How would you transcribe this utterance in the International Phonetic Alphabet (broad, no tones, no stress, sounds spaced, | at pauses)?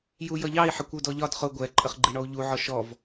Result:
j u j ʌ ʎ ɑ i̯ ħ ɪ kʷ u d ɔ ʎ ɒ d χ ʊ ɡʷ ɛ ǃʼ ə χ ɡ͡ǃ i ɳ ɔ u̯ ʎ u ʕ ɔ ʃ ɔ v